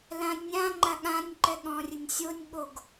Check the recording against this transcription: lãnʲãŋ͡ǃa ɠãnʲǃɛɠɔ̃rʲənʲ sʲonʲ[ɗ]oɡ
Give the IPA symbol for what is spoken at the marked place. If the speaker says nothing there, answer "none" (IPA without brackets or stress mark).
ɠ